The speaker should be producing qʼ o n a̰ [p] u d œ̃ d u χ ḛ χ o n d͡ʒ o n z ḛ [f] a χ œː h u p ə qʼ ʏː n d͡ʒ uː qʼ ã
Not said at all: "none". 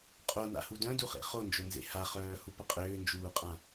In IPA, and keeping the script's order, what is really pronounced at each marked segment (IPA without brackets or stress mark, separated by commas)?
h, h